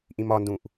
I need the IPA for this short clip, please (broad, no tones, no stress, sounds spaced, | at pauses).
ʔ ĩ m ɒ n d ũ ʔ